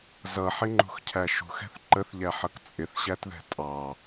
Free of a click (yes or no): no